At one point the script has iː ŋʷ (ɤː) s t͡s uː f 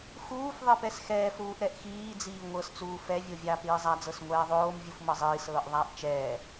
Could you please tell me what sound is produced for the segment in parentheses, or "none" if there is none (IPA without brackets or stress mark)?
ɤ